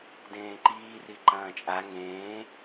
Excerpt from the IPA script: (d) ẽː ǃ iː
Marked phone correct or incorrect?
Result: correct